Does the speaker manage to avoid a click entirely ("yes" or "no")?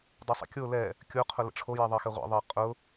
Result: yes